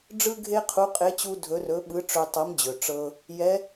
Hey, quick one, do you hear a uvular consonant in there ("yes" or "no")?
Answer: yes